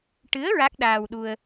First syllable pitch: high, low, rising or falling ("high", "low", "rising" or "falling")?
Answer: rising